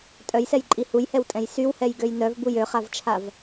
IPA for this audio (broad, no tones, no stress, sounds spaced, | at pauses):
tʼ œ j s ɛ j ǃʼ i h u j h ɛ w tʼ ɛ̃ j s y w h ɛ j ɡ ø j n œ v b u j ø χ a v t͡ʃʰ a v